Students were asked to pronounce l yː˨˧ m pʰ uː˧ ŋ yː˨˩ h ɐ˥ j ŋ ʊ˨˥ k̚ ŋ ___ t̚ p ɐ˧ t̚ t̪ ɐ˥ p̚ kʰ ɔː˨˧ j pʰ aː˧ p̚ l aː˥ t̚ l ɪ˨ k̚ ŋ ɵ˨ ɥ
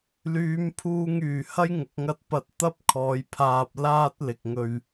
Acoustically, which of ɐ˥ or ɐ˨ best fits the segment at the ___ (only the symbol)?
ɐ˥